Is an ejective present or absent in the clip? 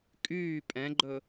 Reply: present